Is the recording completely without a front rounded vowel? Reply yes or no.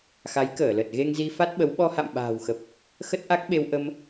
yes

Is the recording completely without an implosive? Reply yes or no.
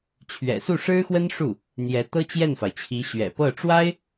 yes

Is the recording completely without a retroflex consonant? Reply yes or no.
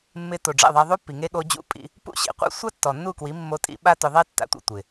no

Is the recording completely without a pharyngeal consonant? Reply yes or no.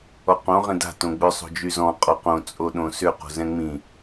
yes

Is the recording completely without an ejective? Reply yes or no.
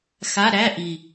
yes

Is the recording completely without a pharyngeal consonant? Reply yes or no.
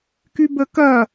yes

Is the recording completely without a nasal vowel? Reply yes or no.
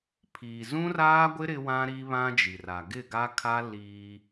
no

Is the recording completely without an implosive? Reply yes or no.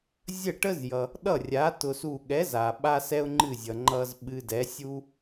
no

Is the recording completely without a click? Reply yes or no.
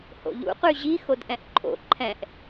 no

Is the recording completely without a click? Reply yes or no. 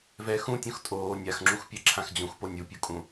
no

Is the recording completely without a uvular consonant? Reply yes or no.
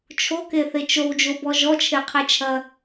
no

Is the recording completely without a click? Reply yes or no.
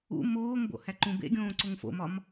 no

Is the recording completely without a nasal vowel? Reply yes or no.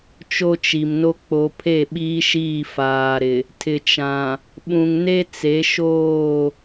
no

